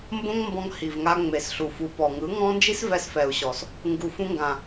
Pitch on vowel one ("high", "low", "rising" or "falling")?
high